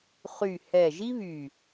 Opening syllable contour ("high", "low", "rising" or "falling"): low